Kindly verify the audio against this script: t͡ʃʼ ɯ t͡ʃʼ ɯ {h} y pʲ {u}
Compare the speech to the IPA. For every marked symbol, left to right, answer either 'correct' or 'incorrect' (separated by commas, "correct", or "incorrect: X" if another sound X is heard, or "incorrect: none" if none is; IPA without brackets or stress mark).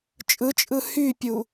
correct, correct